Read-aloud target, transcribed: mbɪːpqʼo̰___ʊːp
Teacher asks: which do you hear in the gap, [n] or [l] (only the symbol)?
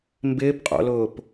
l